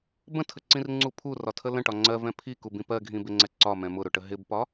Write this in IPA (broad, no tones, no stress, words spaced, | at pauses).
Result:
bə̃tʰəǀĩrŋ͡ǀu pʰurɒtʰə lə̃ʈɒ ŋ͡ǀɜvɛ̃ pʰikubĩ pɜɡʱĩbɪŋ͡ǀɛ ǀɒmɛ̃ mʊɾʊʈə ɦɪbpɒ